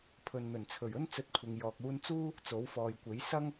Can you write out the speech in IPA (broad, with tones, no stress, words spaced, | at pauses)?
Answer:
pʰɵ˨nn̪ɵ˨˩nt͡sʰɵ˨˩ɥɵ˥n t͡sɵ˧t̚kʷʰɪ˨ŋjɔː˨k̚ uː˧nt͡suː˥ | t͡so˨˥wfɔː˨jkʷe˨˥j sɐ˥ŋ